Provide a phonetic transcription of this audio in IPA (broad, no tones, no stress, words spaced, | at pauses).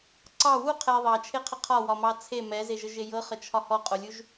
ǀɑ wu qʰɛ ðˤɑt͡ʃʰeqʰə qʰɒwɒmɑ t͡sʰe mɛzeʒəʒe jɤχət͡ʃʰɒ hɔqʼolʲuʒ